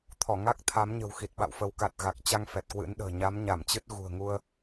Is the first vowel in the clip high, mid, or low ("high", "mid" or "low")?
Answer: mid